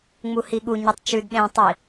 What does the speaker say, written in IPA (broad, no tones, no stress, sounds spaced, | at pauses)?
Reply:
ŋ͡m u h i ɠ u ɲ ʉ tˤ t͡ʃ ʉ d ɗ ẽ tˤ i